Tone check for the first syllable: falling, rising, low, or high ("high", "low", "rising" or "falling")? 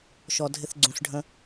low